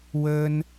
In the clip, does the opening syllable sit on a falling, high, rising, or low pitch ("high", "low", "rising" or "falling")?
high